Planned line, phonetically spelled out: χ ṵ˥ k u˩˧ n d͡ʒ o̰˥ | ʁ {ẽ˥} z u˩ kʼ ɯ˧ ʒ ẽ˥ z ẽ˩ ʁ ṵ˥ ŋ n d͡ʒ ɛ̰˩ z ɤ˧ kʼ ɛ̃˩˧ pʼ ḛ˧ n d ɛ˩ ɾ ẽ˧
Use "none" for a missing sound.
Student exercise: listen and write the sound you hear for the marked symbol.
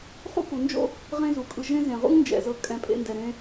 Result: ẽ˥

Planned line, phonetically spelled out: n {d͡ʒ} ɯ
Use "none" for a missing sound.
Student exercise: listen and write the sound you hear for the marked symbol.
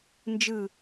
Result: d͡ʒ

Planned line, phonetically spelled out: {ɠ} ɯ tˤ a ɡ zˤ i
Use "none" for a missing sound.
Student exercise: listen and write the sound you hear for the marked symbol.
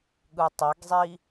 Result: ɠ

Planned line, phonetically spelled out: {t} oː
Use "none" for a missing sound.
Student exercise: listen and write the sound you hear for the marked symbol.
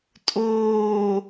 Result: tʼ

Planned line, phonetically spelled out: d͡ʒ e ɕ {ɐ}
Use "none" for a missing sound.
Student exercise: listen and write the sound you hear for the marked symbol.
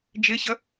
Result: ɐ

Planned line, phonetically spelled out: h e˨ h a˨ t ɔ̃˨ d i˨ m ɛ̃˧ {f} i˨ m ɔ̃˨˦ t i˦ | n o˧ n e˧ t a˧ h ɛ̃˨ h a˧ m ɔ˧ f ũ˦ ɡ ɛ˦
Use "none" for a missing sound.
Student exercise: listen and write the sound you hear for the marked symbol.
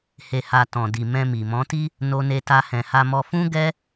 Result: m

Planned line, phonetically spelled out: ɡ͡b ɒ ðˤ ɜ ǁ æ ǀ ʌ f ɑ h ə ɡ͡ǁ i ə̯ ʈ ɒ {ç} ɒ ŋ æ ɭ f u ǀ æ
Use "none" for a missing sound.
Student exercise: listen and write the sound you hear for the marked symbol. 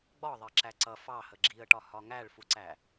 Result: h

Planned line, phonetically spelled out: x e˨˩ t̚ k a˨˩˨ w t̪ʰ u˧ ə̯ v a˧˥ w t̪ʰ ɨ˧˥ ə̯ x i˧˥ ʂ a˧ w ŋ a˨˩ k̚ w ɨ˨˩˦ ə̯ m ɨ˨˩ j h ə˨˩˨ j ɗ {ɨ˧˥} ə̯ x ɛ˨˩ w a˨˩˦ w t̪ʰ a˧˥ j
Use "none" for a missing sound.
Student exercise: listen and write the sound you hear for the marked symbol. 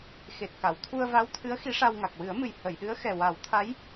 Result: ɨ˧˥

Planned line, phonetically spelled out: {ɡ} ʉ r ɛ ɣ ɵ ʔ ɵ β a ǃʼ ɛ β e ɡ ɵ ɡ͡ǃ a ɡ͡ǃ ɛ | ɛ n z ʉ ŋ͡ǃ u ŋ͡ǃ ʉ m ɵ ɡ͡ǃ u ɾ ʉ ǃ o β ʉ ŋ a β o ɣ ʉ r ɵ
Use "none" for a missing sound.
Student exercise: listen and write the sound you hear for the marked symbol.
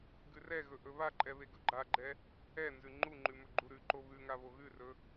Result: ɡ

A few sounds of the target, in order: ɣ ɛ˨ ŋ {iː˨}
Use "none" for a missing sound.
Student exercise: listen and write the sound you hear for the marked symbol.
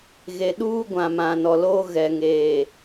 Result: eː˨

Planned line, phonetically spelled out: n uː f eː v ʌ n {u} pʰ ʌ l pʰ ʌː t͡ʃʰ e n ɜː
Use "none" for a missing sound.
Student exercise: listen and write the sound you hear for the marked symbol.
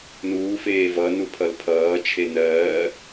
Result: u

